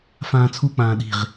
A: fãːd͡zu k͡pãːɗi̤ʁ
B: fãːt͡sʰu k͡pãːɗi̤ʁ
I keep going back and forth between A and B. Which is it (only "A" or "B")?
B